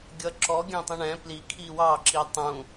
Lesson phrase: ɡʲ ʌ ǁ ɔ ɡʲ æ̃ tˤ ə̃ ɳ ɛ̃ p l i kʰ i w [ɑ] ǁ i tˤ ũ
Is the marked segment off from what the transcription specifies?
no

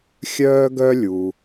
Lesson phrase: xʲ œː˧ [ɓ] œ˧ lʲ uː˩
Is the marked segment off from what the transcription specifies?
yes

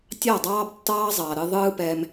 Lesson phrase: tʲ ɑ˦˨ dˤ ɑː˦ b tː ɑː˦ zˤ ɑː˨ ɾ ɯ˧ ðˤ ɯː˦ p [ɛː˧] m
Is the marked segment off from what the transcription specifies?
no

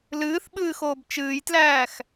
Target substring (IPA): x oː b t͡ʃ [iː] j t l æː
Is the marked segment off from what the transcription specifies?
yes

